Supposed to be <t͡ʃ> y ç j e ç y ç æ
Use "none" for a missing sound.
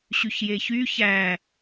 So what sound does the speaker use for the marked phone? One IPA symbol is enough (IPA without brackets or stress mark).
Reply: ɕ